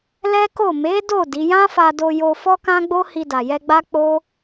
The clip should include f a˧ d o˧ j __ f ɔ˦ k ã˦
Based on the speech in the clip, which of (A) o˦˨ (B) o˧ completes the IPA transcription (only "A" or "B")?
B